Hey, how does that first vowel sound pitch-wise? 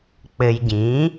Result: low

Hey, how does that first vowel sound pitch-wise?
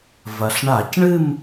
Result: low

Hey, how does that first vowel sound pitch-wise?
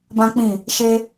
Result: high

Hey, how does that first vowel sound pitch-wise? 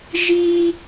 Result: high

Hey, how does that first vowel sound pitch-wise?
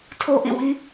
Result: high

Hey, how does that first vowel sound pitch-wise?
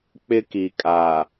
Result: high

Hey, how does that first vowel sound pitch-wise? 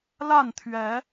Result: falling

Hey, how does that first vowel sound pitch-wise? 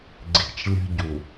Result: low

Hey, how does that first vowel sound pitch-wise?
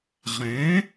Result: rising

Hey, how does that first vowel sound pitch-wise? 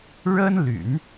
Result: high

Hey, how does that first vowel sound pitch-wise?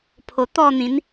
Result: low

